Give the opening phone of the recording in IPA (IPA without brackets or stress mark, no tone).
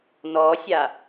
n